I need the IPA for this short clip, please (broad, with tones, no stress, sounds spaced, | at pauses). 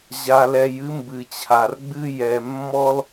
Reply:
ʑ a˨ l ɛ˨ j ɨ˦ m b ɨ˩ t͡ɕʰ a˩ r ɡ͡b ɨ˦ j ɛ˨ mː ɔ˥ l